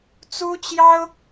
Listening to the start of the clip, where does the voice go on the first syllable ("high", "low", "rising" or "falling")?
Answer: high